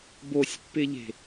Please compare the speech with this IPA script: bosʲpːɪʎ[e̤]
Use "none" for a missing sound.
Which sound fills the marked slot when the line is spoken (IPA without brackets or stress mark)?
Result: e̤